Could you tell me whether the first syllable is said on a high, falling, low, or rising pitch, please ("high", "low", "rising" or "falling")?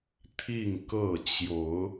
falling